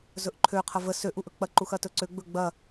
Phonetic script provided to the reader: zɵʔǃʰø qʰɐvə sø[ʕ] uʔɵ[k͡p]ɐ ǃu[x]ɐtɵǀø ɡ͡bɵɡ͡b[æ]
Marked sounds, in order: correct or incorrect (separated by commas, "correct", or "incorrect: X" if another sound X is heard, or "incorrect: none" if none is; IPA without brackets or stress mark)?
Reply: incorrect: ʔ, correct, correct, incorrect: ɐ